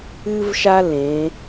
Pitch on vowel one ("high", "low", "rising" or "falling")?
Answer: high